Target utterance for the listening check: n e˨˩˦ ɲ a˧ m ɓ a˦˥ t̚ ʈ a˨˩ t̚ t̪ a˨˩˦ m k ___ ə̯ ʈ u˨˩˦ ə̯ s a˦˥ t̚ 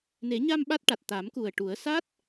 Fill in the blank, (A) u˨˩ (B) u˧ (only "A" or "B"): A